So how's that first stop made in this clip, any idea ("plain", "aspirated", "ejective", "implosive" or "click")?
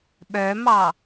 implosive